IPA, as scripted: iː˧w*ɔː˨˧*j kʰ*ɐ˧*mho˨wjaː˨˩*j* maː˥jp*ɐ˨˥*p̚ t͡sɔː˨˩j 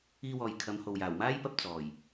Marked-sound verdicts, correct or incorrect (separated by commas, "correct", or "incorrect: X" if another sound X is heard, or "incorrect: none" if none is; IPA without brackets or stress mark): incorrect: ɔː˨, incorrect: ɐ˨˧, incorrect: w, incorrect: ɐ˧